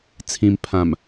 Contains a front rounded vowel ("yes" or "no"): no